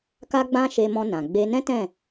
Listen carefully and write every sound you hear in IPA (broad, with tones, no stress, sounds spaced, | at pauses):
k a˦ ɡ͡b ã˦ ʃ e˧ m ɔ̃˧ n ã˨ ɡ͡b e˧ n ɛ̃˦ t ɛ̃˦˨